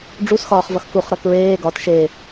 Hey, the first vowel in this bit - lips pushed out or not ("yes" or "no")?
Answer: yes